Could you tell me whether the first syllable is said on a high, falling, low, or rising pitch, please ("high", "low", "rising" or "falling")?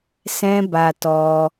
high